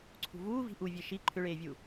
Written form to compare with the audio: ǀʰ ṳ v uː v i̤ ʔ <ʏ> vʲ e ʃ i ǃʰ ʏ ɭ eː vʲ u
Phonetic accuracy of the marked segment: incorrect: u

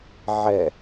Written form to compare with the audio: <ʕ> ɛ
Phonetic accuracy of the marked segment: correct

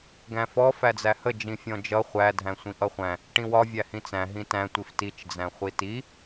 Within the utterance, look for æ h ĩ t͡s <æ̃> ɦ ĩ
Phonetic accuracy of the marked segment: correct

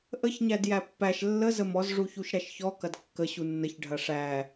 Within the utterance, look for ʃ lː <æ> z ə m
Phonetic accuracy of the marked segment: incorrect: ə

